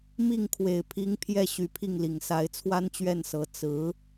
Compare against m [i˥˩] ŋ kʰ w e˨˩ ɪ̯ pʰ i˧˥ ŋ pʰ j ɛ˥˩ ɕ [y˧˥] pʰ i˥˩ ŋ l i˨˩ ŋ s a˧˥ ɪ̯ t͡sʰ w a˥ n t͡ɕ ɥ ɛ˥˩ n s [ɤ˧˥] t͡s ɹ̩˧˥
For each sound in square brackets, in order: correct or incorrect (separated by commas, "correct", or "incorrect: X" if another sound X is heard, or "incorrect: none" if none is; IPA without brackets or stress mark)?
correct, correct, correct